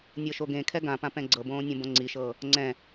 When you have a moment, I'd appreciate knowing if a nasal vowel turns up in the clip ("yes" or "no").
yes